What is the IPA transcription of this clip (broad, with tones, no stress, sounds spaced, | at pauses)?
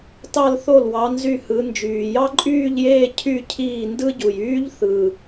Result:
t ɑ˥˧ l θ o˥˩ l w ɑ˨˦ n z y˥˩ h ɯ˨˦ n d͡ʒ yː˨˩ j ɑ˥ ǃʼ yː˥˧ ʎ j eː˥˧ cʰ y˥˧ cʰ iː˥˩ n d ɯ˥ ɟ u˨˩ j yː˥ ʎ θ ɯ˨˩